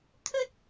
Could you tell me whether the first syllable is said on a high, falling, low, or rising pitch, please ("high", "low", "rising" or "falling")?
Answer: high